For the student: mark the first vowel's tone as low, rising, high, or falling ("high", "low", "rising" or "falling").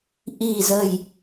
low